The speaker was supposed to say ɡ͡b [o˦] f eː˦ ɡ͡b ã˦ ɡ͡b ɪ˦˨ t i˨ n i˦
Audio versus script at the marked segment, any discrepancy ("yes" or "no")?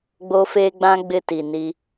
no